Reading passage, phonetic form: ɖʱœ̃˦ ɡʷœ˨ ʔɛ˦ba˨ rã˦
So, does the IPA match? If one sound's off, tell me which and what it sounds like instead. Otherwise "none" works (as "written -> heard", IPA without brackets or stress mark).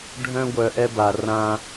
none